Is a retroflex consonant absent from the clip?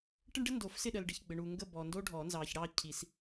no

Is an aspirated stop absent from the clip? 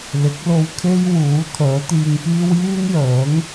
no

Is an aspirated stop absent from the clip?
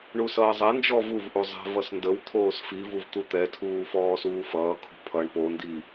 no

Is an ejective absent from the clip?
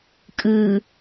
no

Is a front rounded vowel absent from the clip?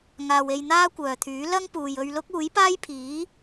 no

